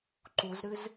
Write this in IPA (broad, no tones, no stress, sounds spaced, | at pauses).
ǃ u z ɾ ɨ z